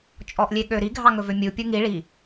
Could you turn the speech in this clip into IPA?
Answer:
t͡ʃʼ ɔ ʔ lʲ e ɠ ø ɾ i ɡʱ ɑ ŋ ɵ v ø mʲ u pʲ u ŋ i ɭ i

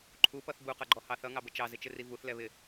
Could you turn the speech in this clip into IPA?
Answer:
ǃʰ u p ʌ θ b u q ʌ ɡ͡ǃ ɔ h ɑ θ ʌ ŋ ɑ b ə t͡ʃ ɑ z ɪ t͡ʃ ɪ r i v u θ l ɛ β ɪ

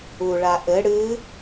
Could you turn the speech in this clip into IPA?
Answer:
u ɭ a ʔ ɘ ɽ ɨ

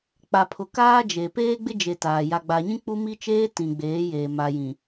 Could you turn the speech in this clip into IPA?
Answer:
k͡p a˨ pʰ ʊ˨ k aː˦ d͡ʒ e˨ p eː˦ ɡ͡b ɪ˦ d͡ʒ e˨ t aː˨ j a˨ ɡ͡b a˨ ɲ ĩ˦ k͡p u˦ m i˦ t͡ʃ eː˦ t ĩ˨ ɡ͡b eː˨˦ j eː˨ m a˨ j ĩ˨

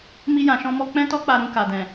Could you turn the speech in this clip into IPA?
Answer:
m i˦ j ã˧ ʃ ɔ̃˦ m ɔ˧ k͡p ɛ̃˦ t ɔ˦ k͡p a˧ ɾ ũ˧ k a˨ d ɛ̃˨

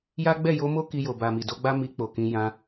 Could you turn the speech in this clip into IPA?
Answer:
j a˦ ɡ͡b ɛ˦˨ j o˧ m o˦ k i˧ j o˨ b a˨ m i˨ d o˧ ɡ͡b a˦ m i˧ k͡p o˨ k ĩ˨˦ j ã˧

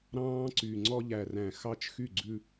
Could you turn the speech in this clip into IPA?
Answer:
ɾ ɑ̃ː˦ ǀ y˨ ŋ͡ǀ ɔ˦ ʎ æ˨ r æ̃˨ x ɑ˦ t͡ʃ x y˦˨ ɡ͡ǀ ʉ˦

